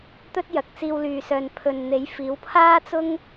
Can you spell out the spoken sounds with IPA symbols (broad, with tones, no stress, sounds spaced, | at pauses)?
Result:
t̪ ɵ˥ t̚ j ɐ˨ k̚ t͡s iː˧ w l yː˨ s œː˨ n pʰ ɵ˨ n n̪ e˨˥ j f iː˨˥ w pʰ aː˥ t͡s ʊ˥ ŋ